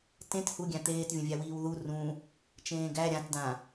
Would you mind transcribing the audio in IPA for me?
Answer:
t ẽ t h u ɡʲ æ̃ t̪ eː t vʲ ə̃ vʲ æ w iː w ð u r ũ | t͡ʃ ẽː ɡ æ ɾʲ ã t d ã

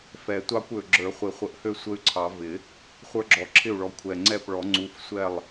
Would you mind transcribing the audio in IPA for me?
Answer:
f ɛ˨˩˦ tʷ ɑ˦ kʷ ø˨˩ ɡ͡ǁ ə˞˨˩˦ χʷ ɪ˨˩˦ χʷ ə˨˩ ʔ h ø˥˩ sʷ ə˦ y̯ ǀʰ ɑ˨˩˦ v ɪ˨˩˦ | χʷ ə˞˦ ɡ͡ǁ ɔ˨˩ ǁʰ ɪ˥˩ u̯ ɭ ɔ˨˥ kʷʰ ɛ˨˩ ŋ͡ǀ ɛ˥˩ p ɭ ɔ˨˩˦ ŋ͡ǀ u˨˥ f sʷ ɛ˥˩ lˠ

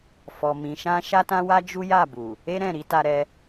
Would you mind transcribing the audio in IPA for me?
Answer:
f ɔ˧ m ĩ˧ ʃ ã˦ ʃ a˦ t ã˦ w a˦ d͡ʒ u˦ j a˦˨ b u˨ | e˦ ɾ ɛ̃˦˨ ɾ i˨˦ t a˧ ɾ ɛ˧

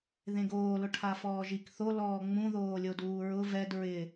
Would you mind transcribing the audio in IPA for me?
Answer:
ð ẽ ɡ oː l ʊ ʈʰ a f ɔː ʒ i k θ o l ɔː ŋ͡m ũ ð oː lʲ o d uː ɹ ʊ v ɛ d ɹ ɪ

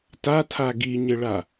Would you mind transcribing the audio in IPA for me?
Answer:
t a tʰ a ɡ i ɲ ɪ ɭ a

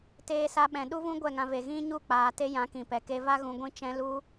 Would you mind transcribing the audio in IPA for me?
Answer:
t eː˧ s a˧ ɓ ɛ̃˨ ɗ u˦ v ũ˦ ɡʷ ɛ˦˨ ŋ ã˧ v e˨ ɣ ĩ˦ ɲ u˦˨ k͡p aː˨ t e˧ j ã˨˦ k ĩ˨ p ɛ˨ k e˧ v a˦ ɣ ũ˧ ɡʷ ĩ˦ t͡ʃ ɛ̃˦ l u˦

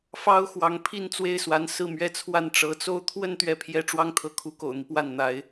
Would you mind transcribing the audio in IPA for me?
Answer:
f ɑ˥ ʊ̯ x w ɑ˧˥ ŋ pʰ i˥˧ n t͡s w e˥˩ ɪ̯ s w a˧˥ n s ɹ̩˥˧ m ɥ ɛ˥˧ t͡sʰ w a˥˩ n ʈ͡ʂ ɤ˧˥ t͡s o˥ ʊ̯ t̪ʰ w ə˥˧ n t̪ ɥ ɛ˥˩ pʰ j ɛ˥ ʈ͡ʂ w ɑ˥ ŋ t̪ʰ ɤ˧˥ kʰ u˧˥ k o̰˨˩ ʊ̯ n̪ i˦ p w a˥˩ n n̪ a˧˥ ɪ̯

